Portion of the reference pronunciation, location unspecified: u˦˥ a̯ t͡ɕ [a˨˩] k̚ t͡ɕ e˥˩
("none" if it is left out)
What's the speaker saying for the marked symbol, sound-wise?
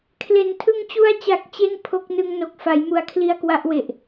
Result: a˨˩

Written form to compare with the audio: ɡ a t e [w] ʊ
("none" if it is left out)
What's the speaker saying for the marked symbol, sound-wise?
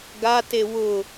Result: w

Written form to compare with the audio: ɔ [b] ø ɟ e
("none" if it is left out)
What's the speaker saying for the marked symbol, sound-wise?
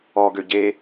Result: ɡ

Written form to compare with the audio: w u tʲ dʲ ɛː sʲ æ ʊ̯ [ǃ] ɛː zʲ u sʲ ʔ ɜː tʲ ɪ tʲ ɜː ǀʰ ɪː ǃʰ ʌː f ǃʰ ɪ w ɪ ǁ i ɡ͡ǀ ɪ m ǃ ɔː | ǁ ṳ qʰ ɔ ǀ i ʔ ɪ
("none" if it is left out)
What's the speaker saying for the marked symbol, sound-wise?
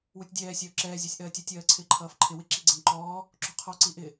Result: ǁ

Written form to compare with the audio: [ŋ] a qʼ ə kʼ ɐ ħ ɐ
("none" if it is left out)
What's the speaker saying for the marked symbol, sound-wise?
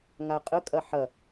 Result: ŋ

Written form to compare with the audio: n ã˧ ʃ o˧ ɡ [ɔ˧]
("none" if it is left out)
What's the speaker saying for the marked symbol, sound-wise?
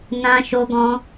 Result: ɔ̃˧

